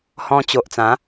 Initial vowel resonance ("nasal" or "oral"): nasal